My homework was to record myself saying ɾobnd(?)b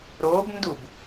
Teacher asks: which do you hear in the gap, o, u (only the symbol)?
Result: u